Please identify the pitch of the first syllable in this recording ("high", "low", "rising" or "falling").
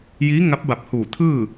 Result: rising